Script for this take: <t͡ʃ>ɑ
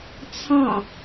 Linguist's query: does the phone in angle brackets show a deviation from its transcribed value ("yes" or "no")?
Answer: yes